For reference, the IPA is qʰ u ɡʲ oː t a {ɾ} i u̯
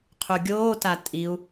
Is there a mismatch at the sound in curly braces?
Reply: yes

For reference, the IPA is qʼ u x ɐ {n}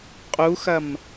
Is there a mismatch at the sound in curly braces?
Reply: yes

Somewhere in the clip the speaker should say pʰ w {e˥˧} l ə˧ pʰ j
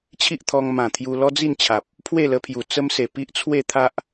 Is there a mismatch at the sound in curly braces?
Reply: no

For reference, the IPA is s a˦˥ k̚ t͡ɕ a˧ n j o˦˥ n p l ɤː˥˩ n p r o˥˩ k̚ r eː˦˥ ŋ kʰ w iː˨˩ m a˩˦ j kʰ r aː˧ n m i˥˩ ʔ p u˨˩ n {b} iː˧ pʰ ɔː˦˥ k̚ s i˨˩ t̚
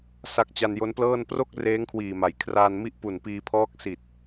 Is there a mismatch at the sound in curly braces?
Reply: yes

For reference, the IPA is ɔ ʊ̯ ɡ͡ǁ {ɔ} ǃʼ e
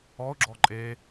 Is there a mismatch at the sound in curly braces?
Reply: no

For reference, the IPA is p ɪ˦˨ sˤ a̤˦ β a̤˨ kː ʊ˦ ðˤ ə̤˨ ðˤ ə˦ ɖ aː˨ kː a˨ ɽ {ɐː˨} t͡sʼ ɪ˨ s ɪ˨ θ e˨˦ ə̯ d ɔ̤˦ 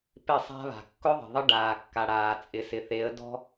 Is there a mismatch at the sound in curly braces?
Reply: yes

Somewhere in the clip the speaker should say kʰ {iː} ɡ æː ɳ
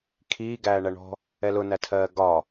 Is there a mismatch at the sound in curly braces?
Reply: no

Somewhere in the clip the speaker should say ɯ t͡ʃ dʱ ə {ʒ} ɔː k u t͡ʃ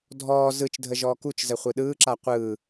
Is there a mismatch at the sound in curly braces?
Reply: no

